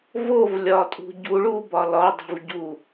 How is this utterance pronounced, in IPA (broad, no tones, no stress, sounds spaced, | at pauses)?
v o v lʲ ɒ tʼ ṳ ɟ u ɭ u b ɒ l ɒ dˤ i̤ v ɟ u